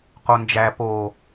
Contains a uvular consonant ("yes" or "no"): yes